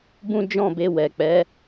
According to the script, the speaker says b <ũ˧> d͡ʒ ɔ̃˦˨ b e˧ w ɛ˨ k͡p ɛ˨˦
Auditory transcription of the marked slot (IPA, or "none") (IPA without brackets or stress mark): ũ˦